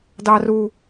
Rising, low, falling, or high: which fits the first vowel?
high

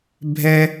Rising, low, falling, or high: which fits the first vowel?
high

